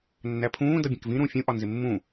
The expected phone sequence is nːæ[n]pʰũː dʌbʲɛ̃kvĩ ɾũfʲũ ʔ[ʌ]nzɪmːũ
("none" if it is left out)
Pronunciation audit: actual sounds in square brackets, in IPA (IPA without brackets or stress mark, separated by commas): none, ɒ